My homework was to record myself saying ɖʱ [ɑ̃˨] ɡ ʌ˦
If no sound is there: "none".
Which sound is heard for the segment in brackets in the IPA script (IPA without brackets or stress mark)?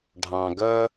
ɑ̃˨